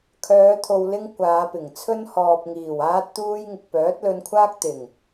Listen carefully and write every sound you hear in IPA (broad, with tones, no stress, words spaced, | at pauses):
kʰœː˨˧t̪ʰo˨wlɪ˧ŋ kʷaː˨˧pɪ˨˩ŋt͡sʰɵ˥n hɔː˨p̚ŋiː˨˩w aː˥t̚ t̪uː˧jŋɪ˨k̚ pœː˨˥t̚lɵ˧nkʷʰaː˥k̚t̪ɪ˨˩ŋ